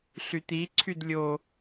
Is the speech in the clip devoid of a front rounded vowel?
no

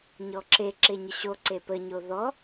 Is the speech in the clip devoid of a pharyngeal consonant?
yes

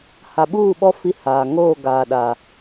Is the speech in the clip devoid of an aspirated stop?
yes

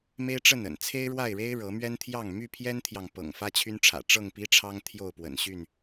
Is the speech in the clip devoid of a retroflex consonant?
no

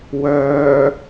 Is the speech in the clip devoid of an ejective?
yes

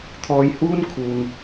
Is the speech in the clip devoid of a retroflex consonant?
yes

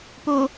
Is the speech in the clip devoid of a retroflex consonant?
yes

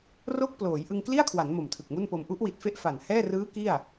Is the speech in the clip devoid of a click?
yes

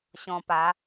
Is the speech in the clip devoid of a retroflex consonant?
yes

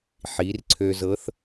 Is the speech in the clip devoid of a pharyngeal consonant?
no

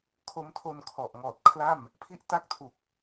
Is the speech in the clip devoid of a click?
yes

